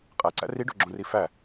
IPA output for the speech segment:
qʼ æ ǀ æ̰ r i ɖ o̤ ɡ͡ǁ õ r i f æ

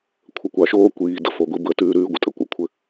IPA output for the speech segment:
kʷʰ ə˨ kʷ ɑ˨ ʃ oː˦ kʷ iː˨ d ə̰˨ f o˨ ɡʷ i˦ b ə˦ t ʉː˦ ɾ ʉː˦ ɡʷ ə̰˨ tʼ ə̰˦ kʷ ə̰˦˨ kʷʰ ɘ˦

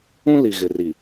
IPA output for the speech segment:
ũ˦ l i˨ ɣ ɪ˨ r i˨

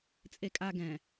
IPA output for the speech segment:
t͡sʼ e kʼ a ɡ ɛ̃

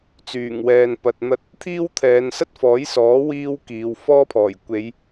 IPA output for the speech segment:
t͡s yː˨˩ ŋ w ɛː˨ n p ɐ˨ t̚ n̪ ɐ˧ t̚ | t̪ʰ iː˥ w t̪ʰ ɛː˨˧ n s ɐ˥ t̚ f ɔː˨˥ j s ɔː˨˥ w iː˥ w k iː˨˧ w f ɔː˥ pʰ ɔː˨˩ j kʷ e˨˧ j

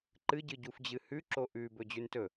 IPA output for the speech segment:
ǃ ɨ ɟ ɨ ɟ u f d͡ʑ ɨ h ʉ ǁ o ʔ ʉ b ɵ d͡ʑ ʉ n t ɵ

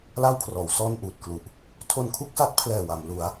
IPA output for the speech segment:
l a˥˩ w kʰ r ɔː˩˦ w s ɔː˥˩ n ʔ uː˨˩ t̚ k l u˨˩ ʔ | tʰ o˧ n kʰ u˥˩ k̚ s a˦˥ t̚ pʰ l ɛː˨˩ w a˩˦ m l u˩˦ a̯

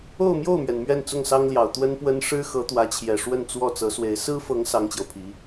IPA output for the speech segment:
o˥˧ ʊ̯ m j o˥˩ ʊ̯ m ɥ ɛ˩ n m ɥ ɛ˥˧ n t͡s ʊ˥˩ ŋ s ɑ˥ ŋ l j ɑ˨˩ ʊ̯ t̪ w ə˥ n p w ə˥ n ʂ ɻ̩˥ x ɤ˧˥ t̪ w ä˧˥ t͡ɕʰ j ɛ˨˩ ʂ w ə˥˧ n t͡s w ɔ˥˩ t͡s ɤ˧˥ s w e˧˥ ɪ̯ s ɹ̩˥ f ɤ˧˥ ŋ s ɑ˥ ŋ t͡ɕ j o˨ ʊ̯ pʰ i˧˥

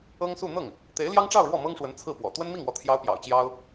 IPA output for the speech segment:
ɤ˥ ŋ s u˥˧ n̪ ɤ˥˩ ŋ | t̪ e˧˥ ɪ̯ l j ɑ˥ ŋ ʈ͡ʂ ɑ˥˧ ʊ̯ ɻ w ɔ˥˩ m ɤ˥ ŋ ʂ w ə˧˥ n t͡sʰ ɹ̩˥˩ p w ɔ̰˨˩ t̪ w ə˥ n m i˥˩ ŋ w ɔ˧˥ t̪ʰ j ɑ˥ ʊ̯ p j ɑ̰˨˩ ʊ̯ t͡ɕ j ɑ˥ ʊ̯

